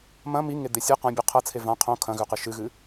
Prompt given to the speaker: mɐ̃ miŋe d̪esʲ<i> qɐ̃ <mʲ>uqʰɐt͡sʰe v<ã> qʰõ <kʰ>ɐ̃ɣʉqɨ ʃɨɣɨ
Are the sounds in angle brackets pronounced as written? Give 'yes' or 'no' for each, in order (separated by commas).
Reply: no, no, yes, yes